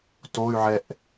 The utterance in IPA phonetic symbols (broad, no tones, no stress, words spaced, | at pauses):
toy̯ʕɛʔ